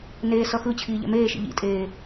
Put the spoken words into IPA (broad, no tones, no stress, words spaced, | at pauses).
neː sʌxɯt͡ɕʰiː ʎɛ̰meːʃḭ ʎḭtʼeː